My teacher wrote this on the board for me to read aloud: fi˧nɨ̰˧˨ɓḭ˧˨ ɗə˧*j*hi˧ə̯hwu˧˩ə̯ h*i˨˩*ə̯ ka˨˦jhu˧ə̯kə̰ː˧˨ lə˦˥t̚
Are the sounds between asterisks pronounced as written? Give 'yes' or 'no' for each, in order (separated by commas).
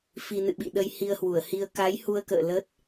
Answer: yes, no